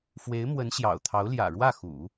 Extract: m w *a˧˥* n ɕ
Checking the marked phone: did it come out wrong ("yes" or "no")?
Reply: yes